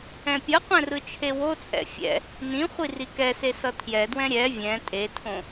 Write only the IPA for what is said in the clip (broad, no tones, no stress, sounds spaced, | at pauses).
ɛ̃ pʲ ʌ qʷ ɛ̃ r ɯ t͡ʃʰ e w o t͡sʼ ɛ̰ fʲ ɛ̰ | n ĩ χʷ i r i k ɛ s e s ʌ tʰ j ɛ d w ɛ̃ ɾʲ ɛ vʲ ɛ̃ tʼ e tʰ õ